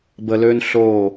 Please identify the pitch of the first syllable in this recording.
low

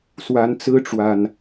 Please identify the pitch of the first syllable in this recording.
rising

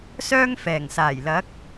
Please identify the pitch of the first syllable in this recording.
high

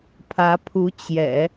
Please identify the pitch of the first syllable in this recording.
rising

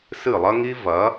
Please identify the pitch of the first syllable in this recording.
falling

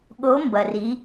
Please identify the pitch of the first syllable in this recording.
rising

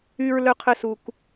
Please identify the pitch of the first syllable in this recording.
high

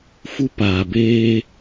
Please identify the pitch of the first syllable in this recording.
high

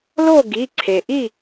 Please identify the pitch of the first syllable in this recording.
falling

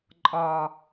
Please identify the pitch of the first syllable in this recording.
high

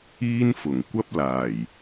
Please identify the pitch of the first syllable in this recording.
high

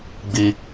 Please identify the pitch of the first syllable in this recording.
high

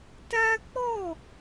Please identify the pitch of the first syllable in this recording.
high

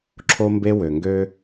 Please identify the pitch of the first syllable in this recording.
high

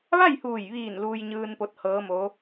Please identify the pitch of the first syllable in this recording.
falling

